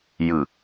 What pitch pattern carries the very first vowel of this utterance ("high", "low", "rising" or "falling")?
low